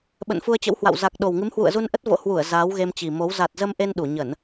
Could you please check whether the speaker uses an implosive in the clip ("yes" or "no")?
yes